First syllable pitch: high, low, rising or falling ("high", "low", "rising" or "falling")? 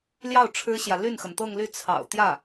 falling